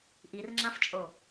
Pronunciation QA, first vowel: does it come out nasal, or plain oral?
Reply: oral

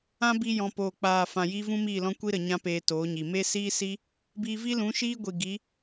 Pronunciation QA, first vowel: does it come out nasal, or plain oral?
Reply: nasal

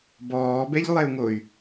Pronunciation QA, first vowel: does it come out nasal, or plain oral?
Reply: oral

